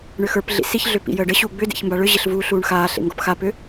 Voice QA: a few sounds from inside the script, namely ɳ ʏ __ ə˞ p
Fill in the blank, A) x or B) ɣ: A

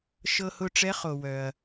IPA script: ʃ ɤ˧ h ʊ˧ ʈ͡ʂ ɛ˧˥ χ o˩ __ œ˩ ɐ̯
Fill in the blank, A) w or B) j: A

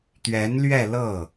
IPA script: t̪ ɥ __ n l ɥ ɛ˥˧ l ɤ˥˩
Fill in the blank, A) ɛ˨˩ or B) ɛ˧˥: B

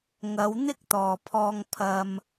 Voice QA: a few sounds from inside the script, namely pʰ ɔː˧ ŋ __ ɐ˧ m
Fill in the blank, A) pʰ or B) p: A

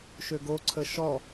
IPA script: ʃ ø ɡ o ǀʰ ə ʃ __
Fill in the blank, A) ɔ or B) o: A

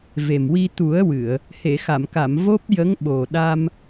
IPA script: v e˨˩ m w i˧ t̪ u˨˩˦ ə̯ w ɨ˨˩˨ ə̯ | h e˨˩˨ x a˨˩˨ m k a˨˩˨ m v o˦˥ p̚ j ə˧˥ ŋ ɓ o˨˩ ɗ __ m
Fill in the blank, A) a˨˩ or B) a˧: B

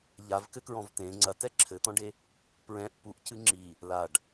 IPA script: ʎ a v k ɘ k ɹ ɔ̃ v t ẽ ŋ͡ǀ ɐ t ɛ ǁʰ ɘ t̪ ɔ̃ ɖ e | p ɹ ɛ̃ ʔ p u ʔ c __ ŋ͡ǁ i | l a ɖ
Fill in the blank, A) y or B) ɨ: B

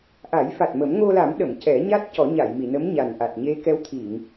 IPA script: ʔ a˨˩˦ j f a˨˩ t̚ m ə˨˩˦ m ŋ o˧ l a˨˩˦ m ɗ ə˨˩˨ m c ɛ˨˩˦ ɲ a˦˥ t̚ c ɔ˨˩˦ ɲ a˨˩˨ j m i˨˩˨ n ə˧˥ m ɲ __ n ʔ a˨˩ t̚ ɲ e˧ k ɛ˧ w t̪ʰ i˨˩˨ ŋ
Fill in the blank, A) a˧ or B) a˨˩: B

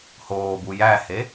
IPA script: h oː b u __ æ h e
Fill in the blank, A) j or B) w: A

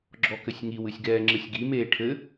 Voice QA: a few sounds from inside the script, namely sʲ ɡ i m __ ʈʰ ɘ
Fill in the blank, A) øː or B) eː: B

